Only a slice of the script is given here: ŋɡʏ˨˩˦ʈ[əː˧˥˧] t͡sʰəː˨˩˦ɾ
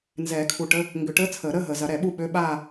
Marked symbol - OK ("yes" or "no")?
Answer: yes